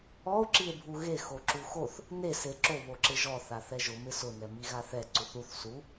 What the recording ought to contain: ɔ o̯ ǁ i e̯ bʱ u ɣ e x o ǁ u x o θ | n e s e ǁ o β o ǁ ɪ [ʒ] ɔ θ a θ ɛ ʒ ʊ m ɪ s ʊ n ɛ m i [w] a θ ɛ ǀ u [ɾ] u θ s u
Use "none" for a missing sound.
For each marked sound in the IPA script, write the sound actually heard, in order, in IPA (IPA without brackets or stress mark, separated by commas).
ʒ, ɣ, θ